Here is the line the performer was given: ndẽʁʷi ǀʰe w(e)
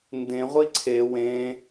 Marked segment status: incorrect: ẽ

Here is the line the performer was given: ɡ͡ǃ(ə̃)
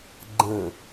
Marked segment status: correct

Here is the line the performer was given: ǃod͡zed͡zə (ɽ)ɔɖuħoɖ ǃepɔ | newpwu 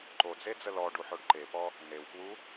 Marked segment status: incorrect: l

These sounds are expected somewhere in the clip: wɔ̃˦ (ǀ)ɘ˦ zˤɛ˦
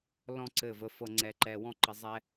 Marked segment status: incorrect: ǃ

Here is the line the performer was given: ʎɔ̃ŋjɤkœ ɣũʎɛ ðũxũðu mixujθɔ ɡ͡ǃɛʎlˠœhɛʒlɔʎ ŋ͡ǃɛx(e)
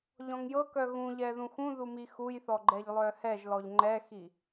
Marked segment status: incorrect: i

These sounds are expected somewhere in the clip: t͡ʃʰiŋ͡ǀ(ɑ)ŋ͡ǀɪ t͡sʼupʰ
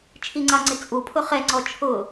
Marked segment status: correct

